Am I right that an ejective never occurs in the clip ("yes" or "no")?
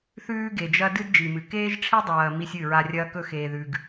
yes